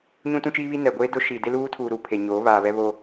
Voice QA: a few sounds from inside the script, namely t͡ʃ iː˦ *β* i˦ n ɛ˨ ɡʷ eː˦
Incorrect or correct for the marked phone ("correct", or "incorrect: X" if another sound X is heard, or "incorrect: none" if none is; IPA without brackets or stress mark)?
correct